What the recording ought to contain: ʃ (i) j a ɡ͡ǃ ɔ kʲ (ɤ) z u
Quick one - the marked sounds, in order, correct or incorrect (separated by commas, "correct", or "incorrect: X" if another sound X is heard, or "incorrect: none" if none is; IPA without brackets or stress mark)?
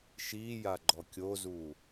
incorrect: iː, incorrect: o